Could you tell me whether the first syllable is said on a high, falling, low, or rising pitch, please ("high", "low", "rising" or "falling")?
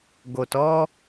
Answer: low